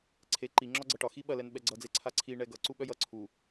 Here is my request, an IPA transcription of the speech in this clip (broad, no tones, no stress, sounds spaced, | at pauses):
ǀʰ e ǃ i ŋ͡ǁ ɒ ɡ͡ǀ ʌ ʈ ɒ x i ɓ ɐ l ɛ n ɓ ɛ ɡ͡ǀ ʌ d͡z e ǀʰ a ǀʰ i ɳ ɛ ɡ ʌ ǀ u ɓ œ j ʌ ǀʰ u